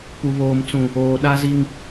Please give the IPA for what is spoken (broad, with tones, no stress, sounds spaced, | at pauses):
p u˨ β oː˨ m t͡s ũ˨ | oː˨ ɗ a˦ z i˦ ŋ